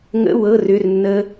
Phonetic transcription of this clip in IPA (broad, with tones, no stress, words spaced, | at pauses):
ŋə̰˧˥˧ wɤ˧˥˧rʏ˧˥˧rnːə˦˥